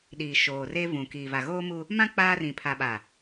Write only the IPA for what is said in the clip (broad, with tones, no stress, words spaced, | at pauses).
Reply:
ɗiː˨ ʃoː˨reː˦ vũ˨ kiː˨va˨ ɣoː˦mu˦ | mã˦ k͡paː˦rĩ˨ pʰa˨ɓa˨